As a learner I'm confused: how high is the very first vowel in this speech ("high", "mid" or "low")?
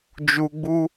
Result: high